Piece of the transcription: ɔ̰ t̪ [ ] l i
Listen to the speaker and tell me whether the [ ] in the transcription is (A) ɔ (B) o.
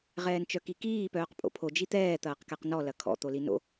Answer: B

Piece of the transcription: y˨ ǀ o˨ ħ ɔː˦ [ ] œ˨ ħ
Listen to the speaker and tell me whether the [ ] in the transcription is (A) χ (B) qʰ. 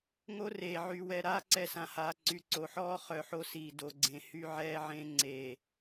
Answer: A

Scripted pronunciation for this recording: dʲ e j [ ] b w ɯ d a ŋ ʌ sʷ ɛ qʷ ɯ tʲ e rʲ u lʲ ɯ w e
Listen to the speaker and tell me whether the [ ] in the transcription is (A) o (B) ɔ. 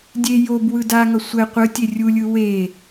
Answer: A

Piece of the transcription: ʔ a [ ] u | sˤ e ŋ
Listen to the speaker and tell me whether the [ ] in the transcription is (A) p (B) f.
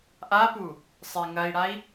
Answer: A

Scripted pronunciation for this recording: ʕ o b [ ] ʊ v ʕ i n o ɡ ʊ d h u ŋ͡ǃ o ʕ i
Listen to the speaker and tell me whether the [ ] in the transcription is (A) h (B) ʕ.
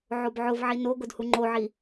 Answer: B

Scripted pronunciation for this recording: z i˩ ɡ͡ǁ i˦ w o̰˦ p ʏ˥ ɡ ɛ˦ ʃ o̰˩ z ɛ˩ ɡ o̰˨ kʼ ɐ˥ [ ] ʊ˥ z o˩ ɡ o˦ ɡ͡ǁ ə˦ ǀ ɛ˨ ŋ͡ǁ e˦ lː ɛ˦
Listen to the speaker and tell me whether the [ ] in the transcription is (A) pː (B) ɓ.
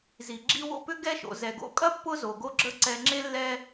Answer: A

